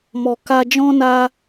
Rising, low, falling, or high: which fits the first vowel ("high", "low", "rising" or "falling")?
low